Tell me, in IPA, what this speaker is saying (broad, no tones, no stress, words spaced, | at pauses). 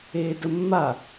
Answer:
eːdəmːa